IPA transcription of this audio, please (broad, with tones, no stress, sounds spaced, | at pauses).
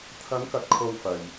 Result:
t̪ʰ ɐ˨˧ ŋ k ɐ˨ t̚ kʰ o˧ w f ɐ˨ j